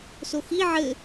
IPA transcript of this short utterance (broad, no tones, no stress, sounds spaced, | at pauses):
s o x i ʕ ɘ